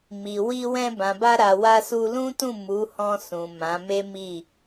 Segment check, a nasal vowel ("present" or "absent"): present